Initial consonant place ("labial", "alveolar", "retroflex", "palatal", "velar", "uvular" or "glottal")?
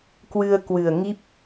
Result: velar